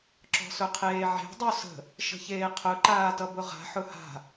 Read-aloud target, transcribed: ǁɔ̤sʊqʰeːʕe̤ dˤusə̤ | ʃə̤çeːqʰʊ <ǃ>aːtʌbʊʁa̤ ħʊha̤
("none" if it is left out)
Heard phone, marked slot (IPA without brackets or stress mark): ǃ